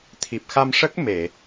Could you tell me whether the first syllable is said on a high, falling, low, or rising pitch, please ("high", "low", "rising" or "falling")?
low